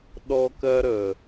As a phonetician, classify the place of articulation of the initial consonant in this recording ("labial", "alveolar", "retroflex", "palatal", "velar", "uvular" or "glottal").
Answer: alveolar